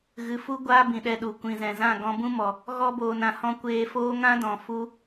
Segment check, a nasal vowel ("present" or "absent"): present